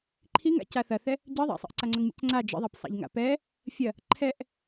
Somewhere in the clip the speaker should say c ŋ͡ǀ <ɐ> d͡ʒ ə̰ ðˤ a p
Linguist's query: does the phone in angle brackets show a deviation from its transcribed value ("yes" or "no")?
yes